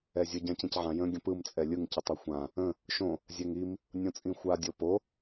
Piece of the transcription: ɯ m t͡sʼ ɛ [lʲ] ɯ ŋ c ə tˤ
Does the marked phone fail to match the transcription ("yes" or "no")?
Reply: no